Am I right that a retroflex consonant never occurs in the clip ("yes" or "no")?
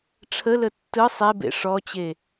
no